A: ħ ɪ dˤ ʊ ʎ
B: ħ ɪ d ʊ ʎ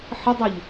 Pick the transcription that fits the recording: A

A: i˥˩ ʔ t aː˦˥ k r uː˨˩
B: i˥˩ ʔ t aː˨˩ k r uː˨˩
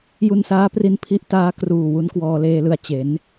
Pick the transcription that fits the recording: A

